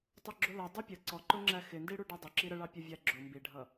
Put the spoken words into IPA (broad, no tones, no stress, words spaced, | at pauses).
tˤʊɡ͡ǁʊlʌ dˤupʲə ǀɔǃʊŋ͡ǁæ xɪndiɽu ɖɛdˤə ǁiɾəɭɑ pʲʊvʲæɡ͡ǁʊ mbiɖʱʌ